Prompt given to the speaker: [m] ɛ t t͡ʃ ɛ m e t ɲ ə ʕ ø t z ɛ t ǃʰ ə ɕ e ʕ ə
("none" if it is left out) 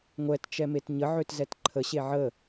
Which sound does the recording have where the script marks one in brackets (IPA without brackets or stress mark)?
ŋʷ